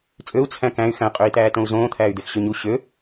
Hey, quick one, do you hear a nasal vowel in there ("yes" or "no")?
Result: yes